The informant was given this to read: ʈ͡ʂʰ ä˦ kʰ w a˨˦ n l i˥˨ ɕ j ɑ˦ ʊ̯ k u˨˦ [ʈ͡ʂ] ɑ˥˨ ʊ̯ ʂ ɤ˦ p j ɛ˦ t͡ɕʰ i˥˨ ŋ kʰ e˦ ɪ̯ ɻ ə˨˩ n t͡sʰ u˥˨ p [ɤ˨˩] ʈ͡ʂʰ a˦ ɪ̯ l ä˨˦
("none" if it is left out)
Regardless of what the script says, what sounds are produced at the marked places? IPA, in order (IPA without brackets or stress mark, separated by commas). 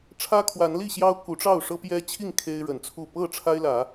ʈ͡ʂ, ɤ˥˨